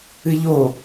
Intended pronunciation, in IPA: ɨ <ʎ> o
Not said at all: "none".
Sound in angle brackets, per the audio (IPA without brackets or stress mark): ʎ